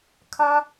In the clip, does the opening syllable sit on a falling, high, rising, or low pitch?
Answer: high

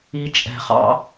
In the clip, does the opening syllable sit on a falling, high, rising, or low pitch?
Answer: low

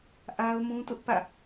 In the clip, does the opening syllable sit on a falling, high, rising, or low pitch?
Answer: high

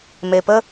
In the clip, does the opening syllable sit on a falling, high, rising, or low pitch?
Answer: low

